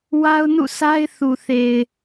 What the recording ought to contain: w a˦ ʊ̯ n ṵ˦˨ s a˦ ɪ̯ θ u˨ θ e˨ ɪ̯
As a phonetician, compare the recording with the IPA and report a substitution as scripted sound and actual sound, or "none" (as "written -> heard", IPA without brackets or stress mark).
none